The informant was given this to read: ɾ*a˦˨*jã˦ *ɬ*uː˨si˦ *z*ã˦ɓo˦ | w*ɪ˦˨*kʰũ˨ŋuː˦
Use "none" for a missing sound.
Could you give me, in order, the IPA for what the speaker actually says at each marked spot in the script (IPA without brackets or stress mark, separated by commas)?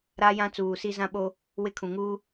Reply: a˦, t͡s, z, ɪ˦˨